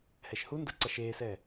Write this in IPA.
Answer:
h ɛ ʃ h u n d ɤ ǀ a ʃ eː s ɛː

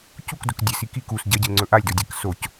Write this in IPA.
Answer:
c u k d ɵ k dʲ ɨ s i k i k u s ɟ ɐ ɟ ɨ l ŋ͡ǀ ɵ ʔ a lʲ d o dʲ a k s o c

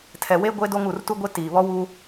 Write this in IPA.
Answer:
tʰ ɛ˨ w e˦ ɡʷ e˦ d o˦ ŋ u˨ r t u˦ ɡʷ e˦ t iː˨ β ɔ˦ w u˦

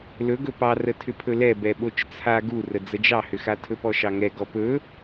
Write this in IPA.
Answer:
l ɵ ɡ ɵ p ɑ r ə tʰ ʏ pʰ ɵ l ɛ b ɛ ɓ o t͡ʃ t͡sʰ a ɡ u r ə d͡z ə d͡ʒ ɑ h ʏ x a tʰ ɵ p ɔ ʃ ɑ ŋ ɛ ɡ ɔ p ɵ

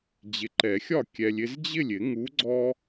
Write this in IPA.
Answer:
d͡ʑ ɪ˨ ǃ ɛ˨˩˦ xʲ ɒ˥˩ kʲ ɛ˨ lʲ ɪ˦ z d͡ʑ ɪ˥˩ lʲ ɪ˨˩˦ ŋ u˨˥ ɡ͡ǀ ɔ˦

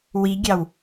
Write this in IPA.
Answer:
w i ɡʲ ɑ w

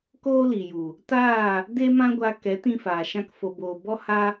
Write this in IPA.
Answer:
k oː˦ l i˨ j u˨ | t aː˦˨ | d e˦ m ã˦ ɡʷ a˧ k ɛ˨˦ t ĩ˧ f aː˨ ʃ ã˧ k f o˨ b oː˨ b ɔ˦ h a˦

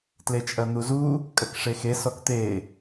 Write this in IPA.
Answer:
t l e t͡ʃʼ ɐ n̪ u z u | kʼ ɐ k ʂ e x e s ɔ k t̪ e

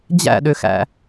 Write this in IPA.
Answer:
d͡ʑ æ̰ ɗ ø x æ̰

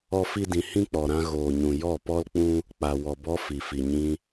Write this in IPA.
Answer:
ɔ˦ f i˦ d ĩ˧ h ĩ˦ k͡p ɔ˨ ɾ ã˧ ɣ oː˨ ɲ ũ˨ j ɔ˦˨ p ɔ˦ l k͡p ũ˦ | k͡p a˨ w ɔ˨ b ɔ˧ f i˨ f i˨ ɲ ĩ˧

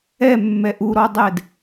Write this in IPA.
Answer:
ɛ mː ɛ ʔ u ɾ ɔ dˤ ɛ d

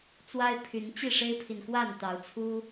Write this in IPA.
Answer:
t͡s w a˦ ɪ̯ pʰ y˨˦ n t͡ɕ i˥˨ ʂ e˦ ɪ̯ pʰ i˨ n k w a˥˨ n t̪ ɑ˨˦ ʊ̯ t͡sʰ u˦

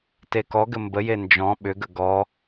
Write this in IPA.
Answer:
t e k ɔ ɡ ɘ m b ə j e n d͡ʒ ɔ̃ ɓ ʏ ɡ ə ɡ ɔ

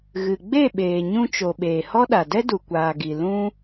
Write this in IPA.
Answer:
ɣ ɨ˨ ɡ͡b e˦˨ ɓ eː˨ ɲ ũ˧ t͡ʃ o˨ ɓ eː˨ h ɔ˦ ɗ a˨ d ɛ˦ d u˨ kʷ aː˨ ɡ i˨ l ũ˦

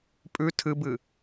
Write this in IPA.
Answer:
pʼ ʉ tʰ ɨ b ɨ

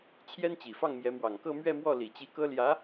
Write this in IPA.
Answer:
t͡ɕʰ j ɛ˥ n t͡ɕ i˨˩ f ɑ˥˩ ŋ m j ɛ˧˥ m w ɑ˨˩ ŋ k ɤ˥˧ m ɥ ɛ˥˧ m w ɔ˥˩ l i˨˩ t͡ɕ i˧˥ k ɤ˥ l j ä˧˥

